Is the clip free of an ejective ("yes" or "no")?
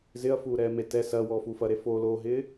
yes